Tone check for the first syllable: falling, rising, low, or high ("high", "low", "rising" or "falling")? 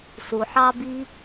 low